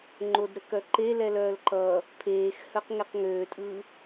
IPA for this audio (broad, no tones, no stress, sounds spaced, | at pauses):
ŋ͡ǃ o d ɾ ə k œ ǃ e l ɛ l œː l ǃ ʌː | pʰ eː x h œ q ŋ ɛ q ŋ øː tʼ ɯː